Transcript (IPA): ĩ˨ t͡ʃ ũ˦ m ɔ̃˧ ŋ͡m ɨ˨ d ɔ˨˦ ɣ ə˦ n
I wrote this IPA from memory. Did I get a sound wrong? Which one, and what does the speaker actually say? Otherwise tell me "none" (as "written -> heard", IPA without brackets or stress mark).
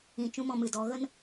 ŋ͡m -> m